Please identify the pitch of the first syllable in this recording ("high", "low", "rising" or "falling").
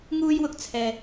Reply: high